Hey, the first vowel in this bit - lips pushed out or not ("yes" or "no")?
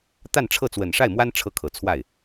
no